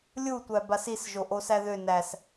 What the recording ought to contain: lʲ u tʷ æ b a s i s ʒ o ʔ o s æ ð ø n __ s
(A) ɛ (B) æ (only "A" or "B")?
B